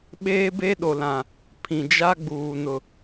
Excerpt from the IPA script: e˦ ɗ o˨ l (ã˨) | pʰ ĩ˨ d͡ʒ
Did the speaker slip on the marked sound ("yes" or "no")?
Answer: no